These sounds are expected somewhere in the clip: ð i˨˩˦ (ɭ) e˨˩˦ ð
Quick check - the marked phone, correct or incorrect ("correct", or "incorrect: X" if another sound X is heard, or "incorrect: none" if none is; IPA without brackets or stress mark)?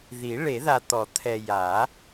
correct